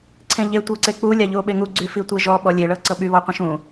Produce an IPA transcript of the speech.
ǀʰẽʎe tʷɤǀek͡pu lʲaʎuo̯ɓeŋu ɡ͡ǀyfitʷeʒɔ ɓɔlʲe ɭɤǀɤɓy βɔqʷẽʃũ

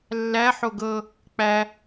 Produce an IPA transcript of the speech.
lːæ ħoɡɤ | k͡pæ

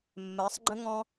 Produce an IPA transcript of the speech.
mːɜ˨˦sˤɡ͡ǃə̃˦ ŋɔ̃˧

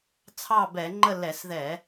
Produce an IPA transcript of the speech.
t͡sʰɑ˦˨bɛ˧˩˧ŋ͡ǃə˦˨ lɛ˧˩˧sðɛ˧˩˧

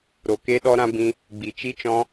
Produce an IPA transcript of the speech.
ɾo˨ke˧ɗɔ˧ ɾã˧bĩ˧ | ɡ͡bi˨t͡ʃi˧t͡ʃɔ̃˧

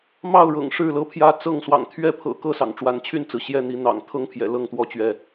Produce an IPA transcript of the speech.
mɑ˥˨ʊ̯ɻɤ̰˨˩ŋ ʂɻ̩˥˨lɤ˦pʰjä˦ t͡sɤ˥˨ŋswɑ̰˨˩ŋ t̪ʰɥɛ˥˨pʰɤ̰˨˩ kɤ˥˨sɑ̰˨˩ŋ ʈ͡ʂwa˨˦nt͡ɕʰy˥˨nt͡sɹ̩˩ ɕjɛ˥˨n̪i˨˦ n̪ɑ̰˨˩ŋ t̪ʰɤ˦ŋpʰjɛ̰˨˩ lɤ˥˨ŋt̪wɔ˦t͡ɕɥɛ˨

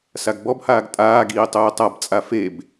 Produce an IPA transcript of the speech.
saɡbɔbhaːɡ tʼaːɡiː tˤuːtˤabt͡sʼa feb

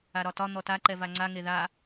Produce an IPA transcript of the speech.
aɾɒtɒ n̪ɔta ǃɛvaŋ͡ǀa ŋeða

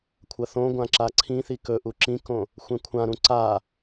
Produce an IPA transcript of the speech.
kʷʰɐθõɡʷã ǁaǀʰĩθi kɵʔu ǁĩkõ | xʷẽkʷʰãɾũ ǀa

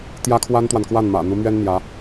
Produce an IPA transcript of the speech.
t̪jä˥kʰwa˥nt̪wa˨nkwa˥˩n mä̰˨˩n̪u˧˥mɥɛ˥n n̪jä˧˥

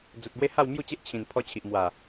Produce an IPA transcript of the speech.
d͡zu˨t̚bwe˦ ha˥˧wmju˥˧t͡ɕe˦ʔ t͡ɕʰĩ˨˩npʰɔ˧ t͡ɕʰi˨ʔmwa˨˩

